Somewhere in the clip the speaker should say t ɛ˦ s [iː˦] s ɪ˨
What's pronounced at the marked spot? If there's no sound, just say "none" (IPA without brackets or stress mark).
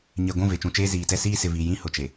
iː˦